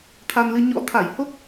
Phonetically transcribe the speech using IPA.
t̪ʰ a˧ n l ɨ˧ ɲ ɔ̰˧˥ t̪ʰ a˧˩ j h o˦˥ k̚

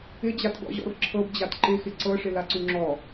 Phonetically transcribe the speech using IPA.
ɪ d͡ʑ a t ɡ ɔ̰ ʑ ɔ̰ r ǁʰ ɤ b d͡ʑ a t ǃ ɪ x ɪ ǀ ɤ ʂ ɪ l a ǀ u ŋ͡ǁ ɔ

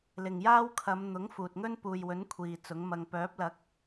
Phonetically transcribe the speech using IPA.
l ɪ˨ ŋ j aː˥ w kʰ ɐ˨˧ m n̪ ʊ˨˥ ŋ f uː˨ t̚ ŋ ɵ˥ n p uː˨ j w ɵ˨˥ n kʷʰ iː˨ t͡s ʊ˨˥ ŋ m ɐ˧ ŋ p œː˨˥ p̚ l ɐ˨˥ k̚

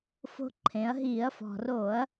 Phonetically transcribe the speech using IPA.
f o̤˧ ǃʰ ẽ˩˧ ɐ̯ ɦ iː˧˩˧ ɐ̯ f ɔ̤˩ r oː˧˩˧ ɐ̯

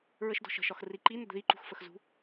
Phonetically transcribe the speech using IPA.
ɹ ə ʃ d ɔ̤ ʃ ə̤ ʃ ɒ x r i ǃ i n ə d ð i ǃ ṳ x f ə x z ṳ

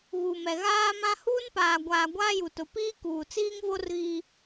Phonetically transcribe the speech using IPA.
ɣ u˨ m ɛ˨ ɣ aː˦ m ã˦ h uː˦ n p aː˨ ɡʷ aː˨ ɡʷ aː˦ j u˨ t ʊ˨ p iː˦ k uː˨ t͡s iː˦ ŋ v o˦ r ɣ i˦

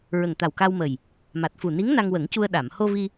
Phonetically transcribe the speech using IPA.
ɹ ə˨˩ ŋ t̪ a˨˩ w k a˧ w m ə˨˩ j | m a˨˩ t̚ f u˨˩ n i˧˥ ŋ n a˧ ŋ w ə˨˩˦ ŋ c u˧ ə̯ ɗ a˨˩˨ m h o˧ v i˧

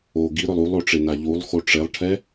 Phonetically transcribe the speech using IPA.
o ɡ i ɾ ʊ lˠ u lˠ o ʈ͡ʂ e n a ʎ u lˠ x o ʈ͡ʂ e lˠ ʈʰ ɛ

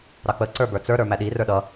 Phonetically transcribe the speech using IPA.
ɾ ɑ k͡p ə ǀ ə˞ b ə˞ t͡s ə˞ ɾ ə˞ m æ ɗ i r ə˞ ɗ ʌ

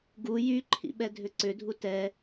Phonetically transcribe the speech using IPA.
ɡ u j y ǃʰ ḭ ɓ ɛ dʱ ʏ ǀ ʏ dʱ u t ɛ

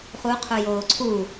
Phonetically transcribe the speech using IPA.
χ u qʰ u j oː ǀʰ u

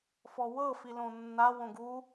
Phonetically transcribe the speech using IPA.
f ɔ w ɤ f i l õ nː a w õ ɡ u

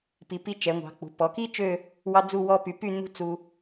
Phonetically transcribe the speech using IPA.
p i˩˧ p i˧ t͡ʃ ɛ˩˧ ŋʷ ɑ̤˩˧ k͡p ṳ˩˧ p ɔ˩˧ k i˥ t͡ʃ ø˥˧ | w ɑ˥ d͡z u˥˧ w ɔ˥ p y˧ p y˥˧ n ṳ˥ t͡s u˧

